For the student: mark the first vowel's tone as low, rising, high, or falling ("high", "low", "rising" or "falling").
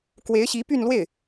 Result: rising